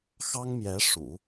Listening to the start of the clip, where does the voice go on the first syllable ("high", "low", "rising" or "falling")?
high